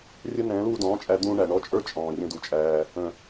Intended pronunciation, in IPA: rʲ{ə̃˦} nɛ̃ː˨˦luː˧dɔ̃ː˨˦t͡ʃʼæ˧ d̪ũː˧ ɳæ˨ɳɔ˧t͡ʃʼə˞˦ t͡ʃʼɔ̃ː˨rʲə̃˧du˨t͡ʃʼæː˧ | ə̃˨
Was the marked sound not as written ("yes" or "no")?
yes